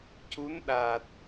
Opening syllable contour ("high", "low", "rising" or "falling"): rising